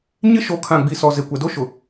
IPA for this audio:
ɲ ɪ˦ ʃ o˨˦ kʰ ã˨ ɡ͡b i˨ s ɔ˨ z e˨ kʷ ɛ˨ d o˦ ʃ ʊ˨

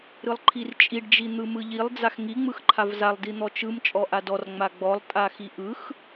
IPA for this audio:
ɾ ɯ lˠ ǃʰ i r t͡ʃʼ i ɖ d͡ʒ i n̪ ɯ m ɯ ʎ i lˠ d͡z a x ŋ i ŋ͡m ɯ x ǃʰ a v z a lˠ d i n̪ ɔ t͡ʃ ɯ m t͡ʃʼ ɔ ʔ a d ɔ r ŋ͡m a ɡ͡b ɔ lˠ tʼ a x i ʔ ɯ x

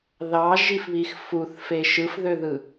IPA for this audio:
ð ɑ ʒ i f β i x f u θ f e ʃ ɯ f ð ø ð ɯ

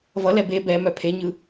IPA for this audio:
v ʌ l ɛ b e b ɛ m œ pʰ e ɲ ɯ

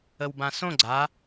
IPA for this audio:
ə w b ã s õ ɡ͡ǀ a

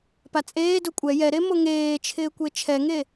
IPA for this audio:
p a t͡sʼ eː d ʊ kʷʼ ɛ j ɛ ɾ e m o ŋ eː t͡ʃʰ ɪː kʷ e t͡ʃʰ ɛ ŋ e

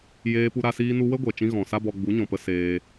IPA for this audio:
j eː˧ p u˧ ɾ a˧ s iː˧ n u˧ w ə˦ ɡʷ ɛ˨ t͡ʃ ĩ˧ ɣ ɔ̃˨ s a˦ b ɔ˧ ɡ͡b u˨˦ ɲ ɔ̃˨ p ə˧ s eː˧

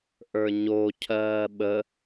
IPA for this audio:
ʔ ə˞ ɲ o cʰ ɜː ɓ ə

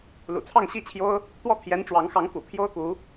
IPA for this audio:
l ṵ˨˩ t͡sʰ ɑ˥˧ ŋ ɕ i˥˩ t͡ɕʰ j o˥ ʊ̯ | t̪ w ɔ˥˩ t̪ʰ j ɛ˧˥ n ʈ͡ʂ w ɑ˧˥ ŋ x ɑ˧˥ ŋ k ṵ˨˩ pʰ j o˥ ʊ̯ k u˧˥

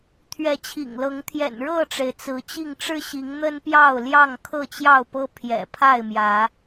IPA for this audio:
t̪ʰ ɥ ɛ˨˦ t͡ɕʰ ḭ˨˩ ŋ l ɤ˨˦ ŋ t̪ʰ j ɛ̰˨˩ n ɻ ɤ˥˨ ʈ͡ʂ e˩ ɪ̯ t͡s ɹ̩˨˦ t͡ɕ i˥˨ ŋ ʈ͡ʂ ɻ̩˦ ɕ i˨˦ ŋ n̪ ə˦ n p j ɑ˥˨ ʊ̯ l j ɑ˥˨ ŋ kʰ ɤ˥˨ t͡ɕ j ɑ˥˨ ʊ̯ p ɤ˦ pʰ j ɛ̰˨˩ pʰ a˥˨ ɪ̯ m j ä˨˦

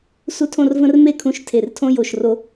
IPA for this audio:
s u˥ tʰ õ˥˧ r v ə̃˥ r m e˥˧ kʰ ũ˧ ʃ tʰ e˧˩ r tʰ õ˥ j o˧˩ ʃ r o˧

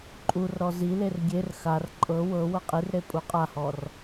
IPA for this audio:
ǃʼ u r ɾ ɔ z i l e r ɡʲ e r x a r ǃʼ ɤ w ɤ w ɤ qʼ i r ɾ e pʼ u qʼ a h ɔ r

